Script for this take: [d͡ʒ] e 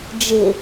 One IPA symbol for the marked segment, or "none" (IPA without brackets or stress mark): d͡ʒ